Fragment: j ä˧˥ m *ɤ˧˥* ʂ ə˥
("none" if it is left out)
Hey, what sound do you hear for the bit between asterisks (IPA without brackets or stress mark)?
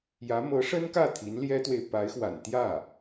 ɤ˧˥